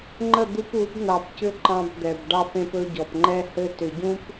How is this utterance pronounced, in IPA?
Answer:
ŋ͡ǃə˦˨d̪u˦p u˨˦bn̪ɑ˨pcʏ˦ ǃɑ̃˦bd̪ɛ˨b ɖɑ˦p ẽ˦pɵ˦ɟɔ˨p ŋ͡ǃɛ˦hɘ˦ tʏ˨ɟũ˦p

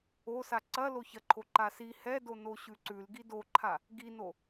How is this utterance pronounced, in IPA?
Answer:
osa ǀɐ loçɐǃʰo ǃasi hɛdo noɕʉǀʉl ɡidoǃʰa | ɡino

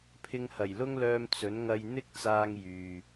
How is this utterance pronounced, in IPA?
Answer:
pʰɪ˧ŋhɐ˨˩jlʊ˥ŋlœː˧m t͡sɵ˨˥n ŋɐ˧jn̪ɪ˥k̚t͡saː˧ŋ jyː˨

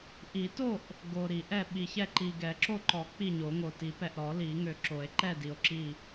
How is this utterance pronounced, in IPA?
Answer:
ʔi˨˩˦to˥˨ʔ | ɡo˨ɾi˨˩˦ʔɛ˥˨ ɓi˨çɛ˥˨ǃi˨ɡɛ˨˩˦ ǁo˥˨ǃɔ˨˩˦ k͡pi˥˨ɲo˨˩˦ŋo˨ ti˨˩˦pɛ˨ʔɾɔ˨˩˦ li˨˩˦ŋø˨ǁo˨˩˦e̯ǃɛ˥˨ di˨o̯ǁi˥˨

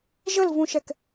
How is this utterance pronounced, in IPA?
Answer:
ʒəlvũʃɛk

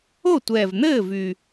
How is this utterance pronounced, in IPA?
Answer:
o˥˩tʷɛː˨˩vn̪ɘː˥˩ vy˨˩

